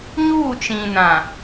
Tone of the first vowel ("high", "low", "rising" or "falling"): falling